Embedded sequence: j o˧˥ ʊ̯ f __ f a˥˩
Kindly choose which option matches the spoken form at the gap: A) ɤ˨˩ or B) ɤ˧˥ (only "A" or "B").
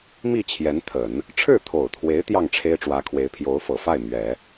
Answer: A